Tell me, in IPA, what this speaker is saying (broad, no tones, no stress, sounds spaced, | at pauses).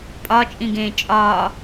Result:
pʼ ɒ t͡ʃʼ ĩ ɡ ẽː t͡ʃʼ ɒː